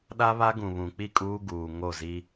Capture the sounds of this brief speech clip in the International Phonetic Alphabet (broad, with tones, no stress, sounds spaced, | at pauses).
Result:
ɗ a˦ β a˦ ɡ ũ˨ β ũ˨ k͡p i˦˨ kʼ uː˦ ɡ uː˨ ŋ o˦˨ z i˦